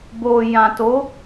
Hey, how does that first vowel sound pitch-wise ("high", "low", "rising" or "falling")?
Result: low